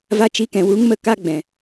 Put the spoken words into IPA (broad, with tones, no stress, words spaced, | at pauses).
va˧t͡ʃi˧kɛ̃˨ wu˨˦ŋmə˧ ka˦ɡ͡bɛ̃˨